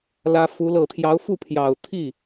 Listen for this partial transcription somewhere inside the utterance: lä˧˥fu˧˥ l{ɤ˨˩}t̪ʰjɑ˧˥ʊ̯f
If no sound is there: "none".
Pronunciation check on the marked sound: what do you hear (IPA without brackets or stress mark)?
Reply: ɤ˨˩